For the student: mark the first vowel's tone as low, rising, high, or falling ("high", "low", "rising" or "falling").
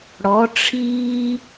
rising